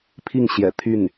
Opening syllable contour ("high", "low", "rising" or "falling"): falling